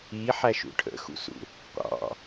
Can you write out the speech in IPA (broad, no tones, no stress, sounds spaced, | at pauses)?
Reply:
i ħ æ ʃ ṵ ʈʰ ə̰ x ṵ s ṵ | qʷ ɑ̰